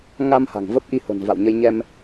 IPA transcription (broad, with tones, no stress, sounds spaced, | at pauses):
ŋ a˧ m h a̤˨˩ ŋ v ə˦˥ p̚ ʔ i˧ h o̤˨˩ n v a̰˧˨ w ɲ ə˧ j ɲ ɛ˧ m